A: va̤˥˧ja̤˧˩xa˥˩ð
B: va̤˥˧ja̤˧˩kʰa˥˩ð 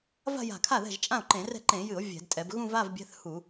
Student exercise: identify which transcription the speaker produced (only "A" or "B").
B